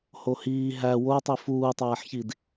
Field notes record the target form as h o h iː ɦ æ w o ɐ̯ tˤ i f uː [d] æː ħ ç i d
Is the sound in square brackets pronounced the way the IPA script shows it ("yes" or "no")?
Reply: no